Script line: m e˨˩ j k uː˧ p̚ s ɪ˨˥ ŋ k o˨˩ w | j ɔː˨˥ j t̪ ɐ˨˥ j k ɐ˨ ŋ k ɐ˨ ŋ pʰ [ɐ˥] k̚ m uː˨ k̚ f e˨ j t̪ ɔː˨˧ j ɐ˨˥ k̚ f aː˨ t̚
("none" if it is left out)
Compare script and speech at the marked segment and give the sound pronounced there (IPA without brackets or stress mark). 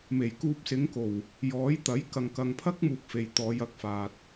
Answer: ɐ˥